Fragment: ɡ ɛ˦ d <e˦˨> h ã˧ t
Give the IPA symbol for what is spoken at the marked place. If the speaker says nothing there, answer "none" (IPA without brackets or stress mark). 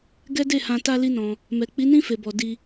e˦˨